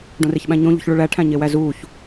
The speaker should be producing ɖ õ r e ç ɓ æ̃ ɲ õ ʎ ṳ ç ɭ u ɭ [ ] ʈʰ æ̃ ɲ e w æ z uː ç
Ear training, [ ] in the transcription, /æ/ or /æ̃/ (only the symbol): æ